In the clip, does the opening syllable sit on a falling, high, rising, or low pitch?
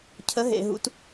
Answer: rising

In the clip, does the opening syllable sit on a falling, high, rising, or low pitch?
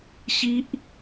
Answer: high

